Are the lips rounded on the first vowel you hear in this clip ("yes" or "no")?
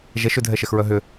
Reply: no